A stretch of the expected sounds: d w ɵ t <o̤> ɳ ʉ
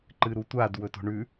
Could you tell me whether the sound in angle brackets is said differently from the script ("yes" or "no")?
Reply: no